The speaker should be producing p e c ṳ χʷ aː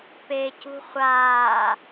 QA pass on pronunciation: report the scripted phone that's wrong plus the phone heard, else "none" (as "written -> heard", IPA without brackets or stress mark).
none